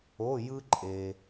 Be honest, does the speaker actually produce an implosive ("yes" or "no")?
no